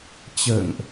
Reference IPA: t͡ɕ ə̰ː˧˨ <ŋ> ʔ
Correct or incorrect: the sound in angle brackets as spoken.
correct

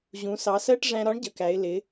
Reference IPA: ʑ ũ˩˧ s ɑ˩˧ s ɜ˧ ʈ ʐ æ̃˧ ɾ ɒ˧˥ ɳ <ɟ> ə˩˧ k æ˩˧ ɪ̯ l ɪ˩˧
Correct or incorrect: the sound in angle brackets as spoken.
correct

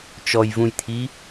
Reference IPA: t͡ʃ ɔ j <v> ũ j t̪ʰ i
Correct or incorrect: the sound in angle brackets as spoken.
correct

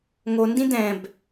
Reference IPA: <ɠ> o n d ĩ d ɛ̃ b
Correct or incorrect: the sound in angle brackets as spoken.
incorrect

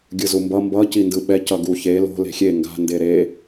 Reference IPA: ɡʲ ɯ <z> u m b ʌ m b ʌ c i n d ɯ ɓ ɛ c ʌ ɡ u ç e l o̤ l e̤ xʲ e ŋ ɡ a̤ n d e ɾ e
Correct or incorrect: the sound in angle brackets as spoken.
correct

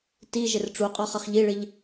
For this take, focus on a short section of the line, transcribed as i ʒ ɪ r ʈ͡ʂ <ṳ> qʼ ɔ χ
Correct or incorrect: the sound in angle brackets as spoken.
incorrect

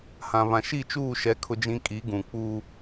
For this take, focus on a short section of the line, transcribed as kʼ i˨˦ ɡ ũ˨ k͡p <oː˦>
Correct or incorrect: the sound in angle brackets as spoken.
incorrect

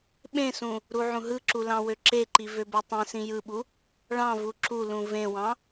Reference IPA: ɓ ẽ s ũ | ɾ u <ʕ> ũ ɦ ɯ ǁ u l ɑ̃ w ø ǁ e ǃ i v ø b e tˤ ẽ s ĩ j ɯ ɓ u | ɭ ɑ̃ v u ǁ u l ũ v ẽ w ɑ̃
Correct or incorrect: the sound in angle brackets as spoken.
correct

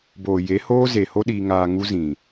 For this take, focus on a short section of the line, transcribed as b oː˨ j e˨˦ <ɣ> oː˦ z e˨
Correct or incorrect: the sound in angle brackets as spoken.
incorrect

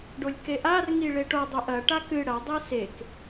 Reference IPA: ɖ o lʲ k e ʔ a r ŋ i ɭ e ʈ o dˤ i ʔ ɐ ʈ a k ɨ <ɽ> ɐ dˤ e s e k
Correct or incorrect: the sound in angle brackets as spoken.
correct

